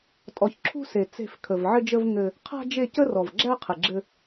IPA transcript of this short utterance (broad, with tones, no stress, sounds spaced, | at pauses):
tʼ ɔ˨ ç ǁʰ ṳ˦ s e˨ t͡s e̤˦˨ f kʰ ə˨ v ʕ ɘ˦ d͡ʒ ə˦ v ŋ ɘ˦ | qʰ a̤˦ d͡ʒ e˦˨ c ə˦ r ɔ˨ v ɡ͡ǁ æ˦ qʰ ɘ˨ ɡ͡ǁ ɘ˦